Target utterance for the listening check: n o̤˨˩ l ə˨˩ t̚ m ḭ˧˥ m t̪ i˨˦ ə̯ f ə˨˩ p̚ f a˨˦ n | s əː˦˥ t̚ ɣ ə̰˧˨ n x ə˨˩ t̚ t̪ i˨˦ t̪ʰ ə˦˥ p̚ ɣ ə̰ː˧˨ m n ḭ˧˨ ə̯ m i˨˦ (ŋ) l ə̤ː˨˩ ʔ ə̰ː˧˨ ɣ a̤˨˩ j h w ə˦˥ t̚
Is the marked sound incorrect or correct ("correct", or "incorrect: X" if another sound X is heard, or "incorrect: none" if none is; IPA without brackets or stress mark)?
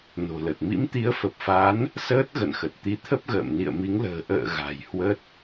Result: correct